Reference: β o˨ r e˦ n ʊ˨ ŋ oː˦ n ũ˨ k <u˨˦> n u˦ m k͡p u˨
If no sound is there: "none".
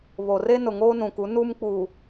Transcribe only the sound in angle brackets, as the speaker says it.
u˨˦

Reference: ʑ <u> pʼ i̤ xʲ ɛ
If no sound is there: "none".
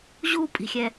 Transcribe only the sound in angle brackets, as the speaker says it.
u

